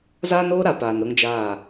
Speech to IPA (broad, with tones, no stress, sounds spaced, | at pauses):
z aː˦ n oː˦ ɾ a˨ p aː˨ n ɾ ʊ˦ ŋ d͡ʒ aː˦˨